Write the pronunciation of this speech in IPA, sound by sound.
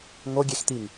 ŋo ɡʲext̪iŋ

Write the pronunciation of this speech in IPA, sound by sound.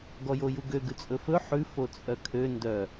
ɡɔjojuɡø ɡʉt͡sʼɵfɵ ħʉ fot͡sʼœkʰø ndœ

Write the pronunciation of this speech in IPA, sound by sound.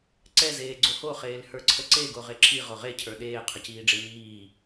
ǀɛ zeːɡ͡ǀoho χeːlhə˞ǀʰəǀe ɡoʁeǁʰi ʁoʁe cʰə˞ɗeː qʰəciːɖ͡ʐeɲiː

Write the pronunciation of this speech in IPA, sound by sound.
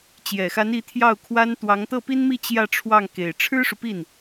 t͡ɕjɛ˨˩xa˧˥ni˧˥ t̪ʰjɑ˥˩ʊ̯kʰwa˥nt̪wɑ˧˥ŋ t̪ɤ˥˩pi˥nmi˥˧ t͡ɕjä˥˧ʈ͡ʂʰwɑ˥˩ŋ ke˨˩ɪ̯ ʈ͡ʂʰɻ̩˥ʂu˨pi˥˩n

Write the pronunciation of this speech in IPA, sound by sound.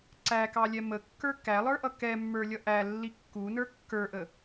ǀækɑlʲɛ məkːə˞ kælˠə˞ʔʌ kɛmːə˞lʲʌ ʔælːi kːunə˞ kːə˞ʔə

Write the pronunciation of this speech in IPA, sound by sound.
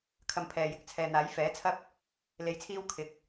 kʰɐ˧mpʰɛː˨jɪ˨˥k̚ t͡sʰɛː˨n̪aː˨˥j fɛː˨˥ t͡sʰɐ˥p̚ | le˧jt͡sʰiː˥w kʰɪ˨k̚

